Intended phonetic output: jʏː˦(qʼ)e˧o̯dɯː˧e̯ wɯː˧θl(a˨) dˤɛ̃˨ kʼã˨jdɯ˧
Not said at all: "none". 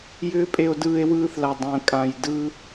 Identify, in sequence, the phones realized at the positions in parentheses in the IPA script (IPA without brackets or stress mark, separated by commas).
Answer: pʼ, a˨